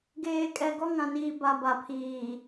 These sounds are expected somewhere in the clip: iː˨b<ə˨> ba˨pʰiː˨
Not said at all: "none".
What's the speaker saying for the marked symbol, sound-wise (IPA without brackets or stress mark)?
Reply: a˨